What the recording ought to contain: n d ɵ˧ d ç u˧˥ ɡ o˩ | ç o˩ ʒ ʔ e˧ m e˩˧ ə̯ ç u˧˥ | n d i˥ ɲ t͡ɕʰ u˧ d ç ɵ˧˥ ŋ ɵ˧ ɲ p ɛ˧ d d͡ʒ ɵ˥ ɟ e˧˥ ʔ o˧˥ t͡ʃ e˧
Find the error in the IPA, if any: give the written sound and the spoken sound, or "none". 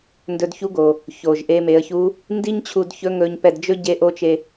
none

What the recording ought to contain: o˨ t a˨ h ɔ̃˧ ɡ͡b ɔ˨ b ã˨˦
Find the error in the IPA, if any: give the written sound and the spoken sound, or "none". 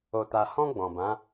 ɔ˨ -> ɔ̃˨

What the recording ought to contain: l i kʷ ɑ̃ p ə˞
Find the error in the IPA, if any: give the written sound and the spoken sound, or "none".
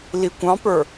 none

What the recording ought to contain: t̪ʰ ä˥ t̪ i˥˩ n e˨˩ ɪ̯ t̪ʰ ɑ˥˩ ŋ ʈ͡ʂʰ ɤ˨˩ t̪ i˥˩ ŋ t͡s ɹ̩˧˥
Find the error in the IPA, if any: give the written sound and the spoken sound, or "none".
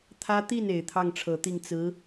none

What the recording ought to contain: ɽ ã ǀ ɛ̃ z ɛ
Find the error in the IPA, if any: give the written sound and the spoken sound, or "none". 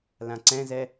ɽ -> l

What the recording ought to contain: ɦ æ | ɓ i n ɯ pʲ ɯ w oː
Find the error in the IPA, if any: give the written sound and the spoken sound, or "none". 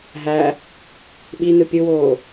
none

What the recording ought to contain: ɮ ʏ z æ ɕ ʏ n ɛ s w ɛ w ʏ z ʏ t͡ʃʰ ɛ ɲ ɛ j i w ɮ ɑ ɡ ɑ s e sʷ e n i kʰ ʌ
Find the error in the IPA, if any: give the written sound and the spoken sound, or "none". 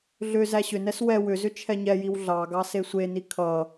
none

